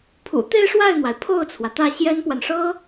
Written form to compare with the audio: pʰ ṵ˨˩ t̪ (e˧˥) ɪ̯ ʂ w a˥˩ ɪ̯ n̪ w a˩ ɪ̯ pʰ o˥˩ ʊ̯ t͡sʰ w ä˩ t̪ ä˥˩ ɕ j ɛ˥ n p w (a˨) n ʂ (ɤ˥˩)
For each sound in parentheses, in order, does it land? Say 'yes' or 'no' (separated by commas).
no, yes, no